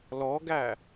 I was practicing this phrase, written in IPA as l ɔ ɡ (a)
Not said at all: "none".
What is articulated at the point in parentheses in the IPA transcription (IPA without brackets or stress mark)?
æ